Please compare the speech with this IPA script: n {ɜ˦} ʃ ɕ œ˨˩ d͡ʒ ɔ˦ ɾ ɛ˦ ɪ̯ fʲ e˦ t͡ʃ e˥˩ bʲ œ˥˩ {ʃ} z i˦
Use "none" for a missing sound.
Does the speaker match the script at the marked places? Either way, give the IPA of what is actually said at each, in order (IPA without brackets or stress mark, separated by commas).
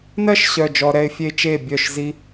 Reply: ɜ˦, ʃ